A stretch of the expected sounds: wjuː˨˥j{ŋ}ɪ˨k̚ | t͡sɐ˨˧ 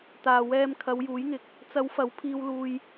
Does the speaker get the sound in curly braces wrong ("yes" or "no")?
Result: no